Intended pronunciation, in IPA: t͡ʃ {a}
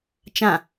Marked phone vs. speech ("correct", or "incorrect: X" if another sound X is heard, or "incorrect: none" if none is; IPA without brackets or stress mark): incorrect: ã